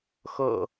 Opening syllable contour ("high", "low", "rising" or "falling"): low